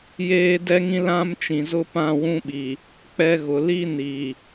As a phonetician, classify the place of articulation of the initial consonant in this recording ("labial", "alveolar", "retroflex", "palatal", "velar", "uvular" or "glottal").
palatal